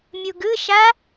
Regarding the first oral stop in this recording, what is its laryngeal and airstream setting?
plain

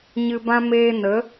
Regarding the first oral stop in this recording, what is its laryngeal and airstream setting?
plain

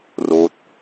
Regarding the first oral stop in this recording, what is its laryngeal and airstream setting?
plain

